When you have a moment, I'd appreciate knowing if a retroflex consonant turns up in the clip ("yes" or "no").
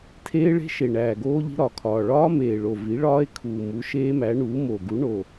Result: yes